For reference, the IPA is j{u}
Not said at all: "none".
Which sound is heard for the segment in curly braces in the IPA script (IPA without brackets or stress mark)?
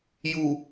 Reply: u